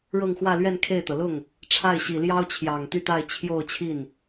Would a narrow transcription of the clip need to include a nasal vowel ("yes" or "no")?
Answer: no